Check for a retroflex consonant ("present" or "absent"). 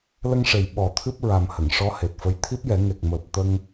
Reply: present